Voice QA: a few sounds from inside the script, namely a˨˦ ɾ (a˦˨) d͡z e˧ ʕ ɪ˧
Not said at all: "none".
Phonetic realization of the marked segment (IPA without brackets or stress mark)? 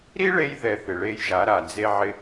a˨